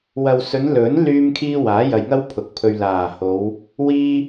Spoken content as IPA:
w ɐ˨ w s ɵ˨˧ n l ɵ˨˥ n l yː˥ m kʰ iː˥ w aː˨˥ j ɐ˨ j ŋ ɐ˥ w pʰ ʊ˨˥ k̚ pʰ ɵ˧ ɥ l aː˨˩ h o˨˧ w | w iː˥

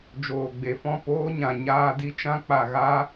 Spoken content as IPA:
d͡ʒ oː˨ ɡ͡b e˨ f ɔ̃˦˨ p oː˦ ɲ ã˨ ɲ aː˦ d i˦ t͡ʃ ã˦ k͡p a˨ ɣ a˦

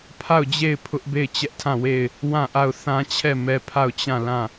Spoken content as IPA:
pʰ a˦˨ ʊ̯ d͡ʑ e˦˨ ɪ̯ pʰ ʊ˦ ʔ b e˦˨ ɪ̯ t͡ɕ ɛ˦ ʔ tʰ ã˦˨ w e˦˨ ɪ̯ | w ã˦˨ ʔ a˦˨ ʊ̯ θ ã˦ t͡ɕʰ ɛ˦˨ m ɛ˦ pʰ a˦˨ ʊ̯ t͡ɕ ã˦˨ l ã˦˨

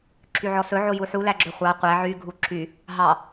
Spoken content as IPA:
ǁʰ y ʕ ɔ s ɵ ʕ o j u ħ u l æ ɡ͡ǁ ɵ χʷ ɑ qʷ æ ʕ y ɡʱ u ǁʰ y | ɦ ɑ

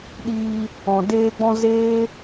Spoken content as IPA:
ɗ iː˧ | ɔ̃˨ d eː˧ ɡ͡b ɔ̃˧ z eː˦

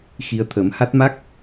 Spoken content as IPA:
x i˧ ə̯ t̪ʰ ə˨˩˦ m h a˦˥ t̚ m a˦˥ k̚

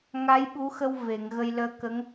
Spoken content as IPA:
ŋ a˧˥ j ɓ u˧˥ x ə˧ w v e˨˩˨ ŋ ɣ ə˧ j l əː˧ k ə˧˥ ŋ

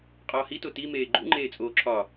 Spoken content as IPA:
qʼ ɒː h i t o t i m eː ɡ͡ǃ ṵ ŋ͡ǃ eː t͡sʼ oː ǁʰ ɒ

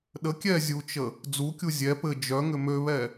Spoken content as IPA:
ɗ ə kʲ ɛ zʲ u t͡ʃ ə | d͡z u kʲ u zʲ ɛ p ɘ d͡ʒ œ ŋ ʏ m ø β ɛ

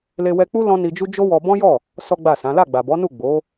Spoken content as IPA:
l e˧ w ɛ˧ k͡p u˦ l ɔ̃˦ n i˧ d͡ʒ u˦ d͡ʒ o˦ w ɔ˧ b ɔ̃˦ j ɔ˦˨ | s ɔ˦ ɡ͡b a˦˨ s ã˨˦ l a˦˨ ɡ͡b a˨ b ɔ˨˦ n u˦˨ ɡ͡b o˨˦

